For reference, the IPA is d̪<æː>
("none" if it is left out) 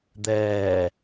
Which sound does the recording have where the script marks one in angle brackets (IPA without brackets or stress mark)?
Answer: ɛː